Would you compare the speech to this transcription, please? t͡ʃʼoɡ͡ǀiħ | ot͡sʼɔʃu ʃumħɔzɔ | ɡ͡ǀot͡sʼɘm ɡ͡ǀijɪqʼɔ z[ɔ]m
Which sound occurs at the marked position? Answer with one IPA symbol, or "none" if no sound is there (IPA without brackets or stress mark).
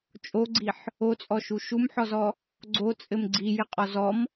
ɔ